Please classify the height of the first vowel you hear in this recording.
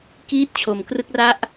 high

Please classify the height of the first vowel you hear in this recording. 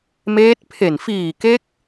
mid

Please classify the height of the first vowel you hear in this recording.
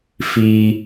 high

